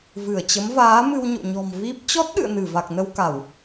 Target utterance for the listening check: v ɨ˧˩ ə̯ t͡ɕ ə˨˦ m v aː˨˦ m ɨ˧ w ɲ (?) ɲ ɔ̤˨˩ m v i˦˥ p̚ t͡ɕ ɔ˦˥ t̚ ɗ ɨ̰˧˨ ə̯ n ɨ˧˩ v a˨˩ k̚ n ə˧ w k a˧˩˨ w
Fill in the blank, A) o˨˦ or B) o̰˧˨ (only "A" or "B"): B